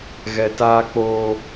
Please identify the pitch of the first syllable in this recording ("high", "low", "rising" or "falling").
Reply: low